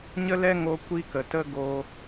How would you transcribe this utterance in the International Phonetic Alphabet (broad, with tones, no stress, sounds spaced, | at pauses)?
ɲ ə˦ l ɛ˦ ŋ o˧ kʷ i˧ k ə˨ t ə˧ ɡ o˧